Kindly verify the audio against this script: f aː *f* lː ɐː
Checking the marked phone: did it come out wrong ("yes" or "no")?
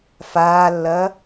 yes